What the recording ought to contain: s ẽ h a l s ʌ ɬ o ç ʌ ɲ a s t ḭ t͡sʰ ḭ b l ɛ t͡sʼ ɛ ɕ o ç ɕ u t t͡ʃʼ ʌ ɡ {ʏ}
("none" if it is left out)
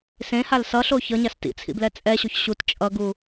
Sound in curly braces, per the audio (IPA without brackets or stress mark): u